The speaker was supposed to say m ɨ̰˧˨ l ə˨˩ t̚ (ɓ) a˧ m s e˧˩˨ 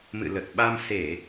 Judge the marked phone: correct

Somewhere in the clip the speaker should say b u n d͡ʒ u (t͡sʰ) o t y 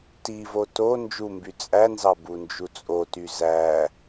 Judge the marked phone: incorrect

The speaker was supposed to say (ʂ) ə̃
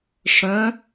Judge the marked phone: correct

